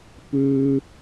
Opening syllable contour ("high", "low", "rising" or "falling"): high